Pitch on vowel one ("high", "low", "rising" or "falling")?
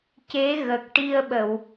rising